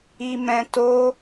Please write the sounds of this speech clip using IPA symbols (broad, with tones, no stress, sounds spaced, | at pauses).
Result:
i˧ m ɛ̃˧ t o˦